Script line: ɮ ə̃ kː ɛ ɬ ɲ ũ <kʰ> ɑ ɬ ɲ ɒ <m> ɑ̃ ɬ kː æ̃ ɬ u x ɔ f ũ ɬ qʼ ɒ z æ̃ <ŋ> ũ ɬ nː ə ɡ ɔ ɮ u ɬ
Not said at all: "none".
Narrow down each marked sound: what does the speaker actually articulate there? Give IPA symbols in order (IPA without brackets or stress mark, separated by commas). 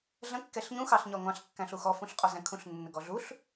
x, ŋʷ, kʰ